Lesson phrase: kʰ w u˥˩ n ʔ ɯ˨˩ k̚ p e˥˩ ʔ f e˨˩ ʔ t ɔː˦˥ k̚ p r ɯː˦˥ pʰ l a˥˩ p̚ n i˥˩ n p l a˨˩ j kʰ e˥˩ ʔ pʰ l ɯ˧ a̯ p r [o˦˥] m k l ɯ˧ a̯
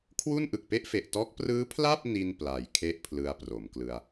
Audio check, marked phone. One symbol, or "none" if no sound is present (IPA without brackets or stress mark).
o˩˦